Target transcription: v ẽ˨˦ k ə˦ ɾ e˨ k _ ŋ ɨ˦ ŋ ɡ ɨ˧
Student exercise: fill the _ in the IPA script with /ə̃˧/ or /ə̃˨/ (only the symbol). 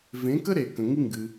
ə̃˨